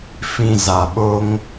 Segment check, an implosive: present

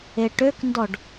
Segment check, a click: absent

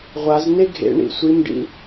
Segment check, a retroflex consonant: present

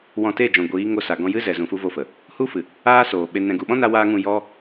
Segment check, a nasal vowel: present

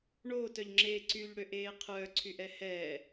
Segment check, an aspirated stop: present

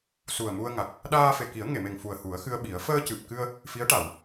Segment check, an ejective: absent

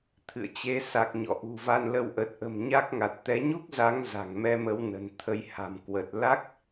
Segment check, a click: absent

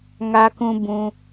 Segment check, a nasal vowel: present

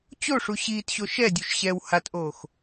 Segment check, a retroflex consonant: present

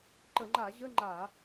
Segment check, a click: present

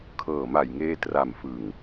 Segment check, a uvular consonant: absent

